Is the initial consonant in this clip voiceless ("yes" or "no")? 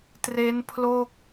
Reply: yes